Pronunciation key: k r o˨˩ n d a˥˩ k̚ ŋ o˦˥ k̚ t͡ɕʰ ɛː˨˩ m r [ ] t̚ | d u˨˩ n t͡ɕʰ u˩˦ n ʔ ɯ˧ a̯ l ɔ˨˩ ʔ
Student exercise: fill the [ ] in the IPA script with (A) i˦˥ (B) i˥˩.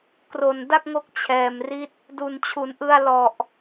A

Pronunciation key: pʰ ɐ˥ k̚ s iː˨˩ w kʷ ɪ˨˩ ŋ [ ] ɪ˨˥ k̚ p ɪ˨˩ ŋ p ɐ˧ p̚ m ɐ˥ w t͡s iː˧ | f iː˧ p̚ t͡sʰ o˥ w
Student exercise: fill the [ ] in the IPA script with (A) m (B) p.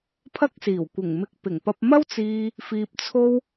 A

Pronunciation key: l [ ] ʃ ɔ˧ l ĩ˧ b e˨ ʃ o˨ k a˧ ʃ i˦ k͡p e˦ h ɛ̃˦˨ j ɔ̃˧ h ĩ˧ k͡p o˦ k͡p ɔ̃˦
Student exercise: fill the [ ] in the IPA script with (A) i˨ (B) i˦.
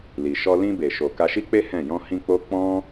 A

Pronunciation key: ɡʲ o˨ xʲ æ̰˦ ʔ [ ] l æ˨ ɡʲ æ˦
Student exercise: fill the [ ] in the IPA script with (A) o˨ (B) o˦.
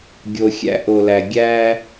A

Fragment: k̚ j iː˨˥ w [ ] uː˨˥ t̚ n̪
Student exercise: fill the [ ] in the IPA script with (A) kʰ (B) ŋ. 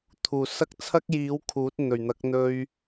A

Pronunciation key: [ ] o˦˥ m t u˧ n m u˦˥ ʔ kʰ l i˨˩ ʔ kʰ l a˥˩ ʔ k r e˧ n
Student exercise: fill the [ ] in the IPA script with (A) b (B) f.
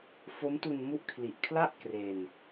B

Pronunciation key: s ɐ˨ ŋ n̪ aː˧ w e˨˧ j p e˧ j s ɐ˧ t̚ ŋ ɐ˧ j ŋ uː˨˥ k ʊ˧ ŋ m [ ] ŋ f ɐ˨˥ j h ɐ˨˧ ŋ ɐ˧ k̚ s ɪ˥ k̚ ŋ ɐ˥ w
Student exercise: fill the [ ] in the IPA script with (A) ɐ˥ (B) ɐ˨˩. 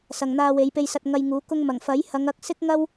B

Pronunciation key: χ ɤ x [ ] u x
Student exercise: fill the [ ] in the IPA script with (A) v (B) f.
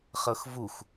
A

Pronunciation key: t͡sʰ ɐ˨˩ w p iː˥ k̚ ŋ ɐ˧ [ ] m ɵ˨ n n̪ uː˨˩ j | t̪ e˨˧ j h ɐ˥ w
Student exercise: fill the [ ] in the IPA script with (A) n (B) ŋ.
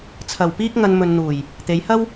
A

